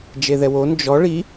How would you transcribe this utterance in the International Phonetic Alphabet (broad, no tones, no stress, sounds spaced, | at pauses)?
d͡ʒ e ð ɛ w o n d͡ʒ ɔ ɭ i